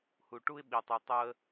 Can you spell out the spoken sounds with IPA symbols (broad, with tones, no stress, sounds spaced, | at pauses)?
h u˨ ʈ u˧ ɪ̯ ɓ i˨ tˤ i˨ tˤ o˧ ə̯